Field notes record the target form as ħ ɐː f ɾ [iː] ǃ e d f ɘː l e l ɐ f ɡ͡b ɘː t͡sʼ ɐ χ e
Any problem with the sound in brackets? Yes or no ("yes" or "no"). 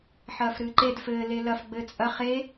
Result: yes